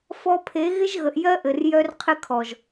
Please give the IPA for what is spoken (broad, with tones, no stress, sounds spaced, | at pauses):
f ɔ˦ pʰ e˨˦ ɣ ɪ˦ ʒ ɣ ə˨ ʔ j ɜ˦ ʔ ɘ˨ r j œ˦ r qʰ ɪ˦ kʰ ɔ˨ ʒ